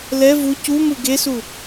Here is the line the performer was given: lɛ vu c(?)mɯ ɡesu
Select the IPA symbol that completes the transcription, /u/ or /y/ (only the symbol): u